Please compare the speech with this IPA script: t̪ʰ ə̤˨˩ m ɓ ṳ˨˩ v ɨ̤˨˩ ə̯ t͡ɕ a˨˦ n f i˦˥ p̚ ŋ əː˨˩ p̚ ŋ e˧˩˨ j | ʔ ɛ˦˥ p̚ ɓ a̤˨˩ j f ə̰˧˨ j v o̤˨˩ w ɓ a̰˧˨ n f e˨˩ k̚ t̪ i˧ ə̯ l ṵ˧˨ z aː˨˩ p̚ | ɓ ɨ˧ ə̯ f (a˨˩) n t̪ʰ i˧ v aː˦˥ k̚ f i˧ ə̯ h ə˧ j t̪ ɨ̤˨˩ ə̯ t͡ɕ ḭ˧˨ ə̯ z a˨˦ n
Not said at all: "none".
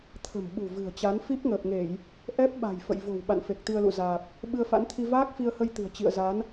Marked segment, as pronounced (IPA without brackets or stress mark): a̰˧˥